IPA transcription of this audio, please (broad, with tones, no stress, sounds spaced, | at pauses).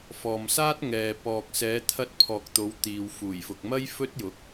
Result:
f ɔː˨ m s aː˥ t̚ ŋ ɛː˨ p ɔː˨ k̚ s ɛː˨˧ t̪ʰ ɐ˧ t̚ pʰ ɔː˨ k̚ t̪ o˨˧ w t̪ iː˨ w f uː˨˩ j f ʊ˨ k̚ m ɐ˥ j f ɵ˥ t̚ j ʊ˨˥ k̚